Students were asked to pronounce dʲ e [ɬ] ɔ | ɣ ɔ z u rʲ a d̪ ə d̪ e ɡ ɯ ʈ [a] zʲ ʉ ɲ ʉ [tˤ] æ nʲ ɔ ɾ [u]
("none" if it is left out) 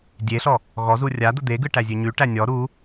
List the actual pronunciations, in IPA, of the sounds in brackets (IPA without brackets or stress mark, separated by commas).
ɬ, æ, ʈ, u